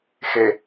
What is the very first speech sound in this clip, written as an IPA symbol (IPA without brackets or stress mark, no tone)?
x